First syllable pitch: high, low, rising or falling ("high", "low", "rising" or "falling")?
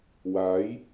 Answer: rising